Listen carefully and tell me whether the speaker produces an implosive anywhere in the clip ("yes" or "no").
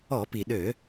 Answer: yes